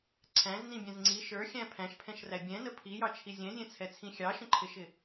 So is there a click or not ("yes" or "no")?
yes